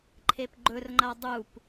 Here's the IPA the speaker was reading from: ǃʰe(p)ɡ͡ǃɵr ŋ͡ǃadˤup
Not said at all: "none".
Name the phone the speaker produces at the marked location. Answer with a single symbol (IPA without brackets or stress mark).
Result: p